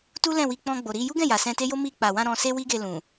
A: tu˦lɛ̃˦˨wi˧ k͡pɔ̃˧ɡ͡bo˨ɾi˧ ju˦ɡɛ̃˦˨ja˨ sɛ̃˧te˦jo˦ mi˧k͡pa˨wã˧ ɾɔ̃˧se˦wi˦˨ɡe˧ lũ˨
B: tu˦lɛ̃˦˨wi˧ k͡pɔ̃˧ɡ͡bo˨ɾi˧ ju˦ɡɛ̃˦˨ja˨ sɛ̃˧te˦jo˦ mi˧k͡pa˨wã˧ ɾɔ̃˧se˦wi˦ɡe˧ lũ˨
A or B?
B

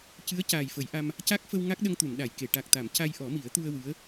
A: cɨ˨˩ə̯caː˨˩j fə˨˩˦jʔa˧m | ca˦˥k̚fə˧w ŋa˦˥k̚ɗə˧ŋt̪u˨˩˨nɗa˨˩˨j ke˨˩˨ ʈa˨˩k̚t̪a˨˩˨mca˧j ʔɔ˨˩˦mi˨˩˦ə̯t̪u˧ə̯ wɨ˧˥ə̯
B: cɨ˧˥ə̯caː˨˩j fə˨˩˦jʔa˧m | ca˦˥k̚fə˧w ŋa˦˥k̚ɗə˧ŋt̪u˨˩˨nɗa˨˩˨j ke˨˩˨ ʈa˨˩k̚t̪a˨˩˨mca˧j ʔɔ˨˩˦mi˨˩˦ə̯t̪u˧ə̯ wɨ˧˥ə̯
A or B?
B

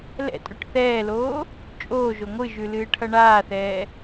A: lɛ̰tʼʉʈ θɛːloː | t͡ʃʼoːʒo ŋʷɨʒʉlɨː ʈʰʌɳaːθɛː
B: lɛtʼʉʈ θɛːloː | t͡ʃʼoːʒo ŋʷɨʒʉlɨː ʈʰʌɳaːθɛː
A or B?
A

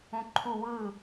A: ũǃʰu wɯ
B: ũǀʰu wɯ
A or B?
A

